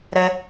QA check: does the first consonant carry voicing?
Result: yes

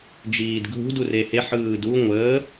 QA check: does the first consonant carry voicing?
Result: yes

